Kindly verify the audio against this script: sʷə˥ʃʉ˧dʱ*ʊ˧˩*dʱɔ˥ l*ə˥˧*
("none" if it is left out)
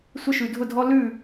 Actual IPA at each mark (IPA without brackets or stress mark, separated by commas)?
ʊ˥˧, ʉ˥˧